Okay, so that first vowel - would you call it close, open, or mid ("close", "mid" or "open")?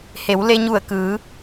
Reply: mid